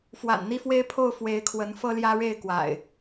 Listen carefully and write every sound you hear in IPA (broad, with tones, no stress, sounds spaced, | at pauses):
f w a̰˨˩ n n̪ i˥˨ f w e˦ ɪ̯ pʰ o˥˨ ʊ̯ f w e˨˦ ɪ̯ kʰ w ə˨˦ n f ɤ˦ l j ä˦ ɻ e˥˨ ɪ̯ k w a̰˨˩ ɪ̯